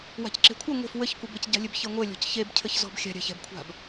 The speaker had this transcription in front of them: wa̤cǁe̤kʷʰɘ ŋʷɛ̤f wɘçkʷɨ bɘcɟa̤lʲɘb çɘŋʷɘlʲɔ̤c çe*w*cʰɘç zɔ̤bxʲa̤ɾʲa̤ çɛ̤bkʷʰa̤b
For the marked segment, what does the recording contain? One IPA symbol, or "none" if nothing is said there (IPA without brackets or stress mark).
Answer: b